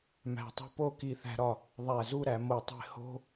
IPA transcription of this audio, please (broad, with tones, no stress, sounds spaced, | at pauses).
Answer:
m æ̤˧˩ tˤ o̤˥ p o˥˧ k i˧ θ æ̤˧ ɾ ɒ˧˩ | ðˤ æ˧˩ z u˥˧ ɾ æ˩˧ m o˧˩ tˤ e̤˥˧ h o̤˥